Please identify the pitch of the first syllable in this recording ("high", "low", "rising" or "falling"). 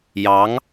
rising